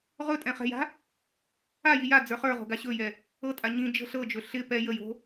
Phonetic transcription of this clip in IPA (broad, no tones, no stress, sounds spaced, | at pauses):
ʁ ɵ tʼ ɛ̃ χ ɛ̤ j a̤ | a j i j a d͡z ə˞ χ ə˞ ʁ o̤ ɡ a ɕ ɵ j ɛ | ɤ tʼ a ɲ ĩ d͡ʒ ə̤ ɬ ɤ d͡ʒ ɵ ɬ ɪ p ɛ j ə j o̤